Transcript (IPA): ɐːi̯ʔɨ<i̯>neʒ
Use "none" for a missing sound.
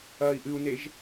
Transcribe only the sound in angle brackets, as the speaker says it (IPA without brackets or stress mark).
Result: u̯